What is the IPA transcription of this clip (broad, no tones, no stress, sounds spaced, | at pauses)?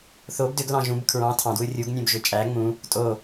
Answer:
θ o b d ø ɡ l ɑ̃ ʒ ũ b kʰ ɹ ɑ̃ tʰ ɑ̃ d w ɯ rʲ u ɡ nʲ õ b ʒ ø t͡ʃʼ æ ŋ͡m ũ | tʼ o